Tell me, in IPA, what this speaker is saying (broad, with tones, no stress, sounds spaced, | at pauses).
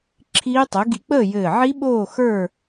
ǁʰ iː˦˥ tˤ ɘ˨˥ ɡ ḭ˧ k͡p əː˥˨ j ɘː˧˩ ʕ i˦˥ ɓ oː˥˨ x ə˞˥˨